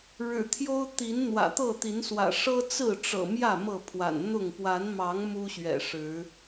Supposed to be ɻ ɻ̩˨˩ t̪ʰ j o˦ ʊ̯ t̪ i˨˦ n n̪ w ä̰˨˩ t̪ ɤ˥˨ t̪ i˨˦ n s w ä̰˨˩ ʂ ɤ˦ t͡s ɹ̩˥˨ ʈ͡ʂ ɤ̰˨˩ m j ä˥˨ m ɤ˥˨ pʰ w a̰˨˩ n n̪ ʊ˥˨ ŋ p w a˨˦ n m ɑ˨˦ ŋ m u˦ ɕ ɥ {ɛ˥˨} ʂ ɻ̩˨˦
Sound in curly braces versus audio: incorrect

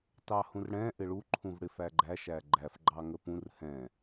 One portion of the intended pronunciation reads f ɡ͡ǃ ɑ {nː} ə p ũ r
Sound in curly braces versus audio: incorrect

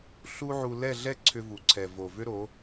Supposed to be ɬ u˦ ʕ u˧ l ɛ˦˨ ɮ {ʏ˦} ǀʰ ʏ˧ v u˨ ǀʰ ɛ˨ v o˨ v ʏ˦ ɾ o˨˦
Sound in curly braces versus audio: incorrect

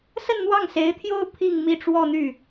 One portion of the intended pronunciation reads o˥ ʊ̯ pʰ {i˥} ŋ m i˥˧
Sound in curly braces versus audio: incorrect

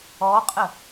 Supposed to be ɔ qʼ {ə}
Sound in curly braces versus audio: correct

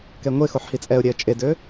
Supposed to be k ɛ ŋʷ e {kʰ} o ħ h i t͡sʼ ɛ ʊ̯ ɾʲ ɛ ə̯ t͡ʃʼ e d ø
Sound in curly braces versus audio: incorrect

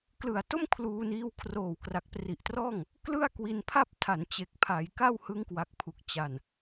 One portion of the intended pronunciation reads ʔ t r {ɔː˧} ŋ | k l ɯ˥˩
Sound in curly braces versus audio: incorrect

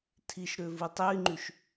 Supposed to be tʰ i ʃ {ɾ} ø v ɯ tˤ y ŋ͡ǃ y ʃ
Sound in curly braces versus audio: correct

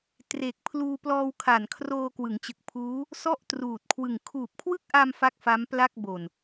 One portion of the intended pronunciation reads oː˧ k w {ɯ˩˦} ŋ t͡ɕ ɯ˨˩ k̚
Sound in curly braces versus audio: correct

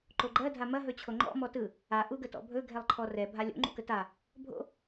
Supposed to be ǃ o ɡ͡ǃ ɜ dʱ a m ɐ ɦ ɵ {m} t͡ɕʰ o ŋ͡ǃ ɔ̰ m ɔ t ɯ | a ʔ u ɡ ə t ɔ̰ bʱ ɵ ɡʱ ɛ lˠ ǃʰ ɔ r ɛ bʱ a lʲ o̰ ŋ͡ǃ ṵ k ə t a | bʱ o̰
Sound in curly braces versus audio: incorrect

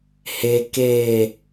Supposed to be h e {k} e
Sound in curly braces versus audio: correct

